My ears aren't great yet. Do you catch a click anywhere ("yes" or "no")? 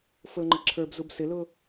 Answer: yes